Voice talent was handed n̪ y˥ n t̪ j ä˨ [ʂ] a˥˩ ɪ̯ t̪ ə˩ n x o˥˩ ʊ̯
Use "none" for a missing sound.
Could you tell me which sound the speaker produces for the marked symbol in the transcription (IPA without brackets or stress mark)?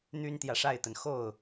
ʂ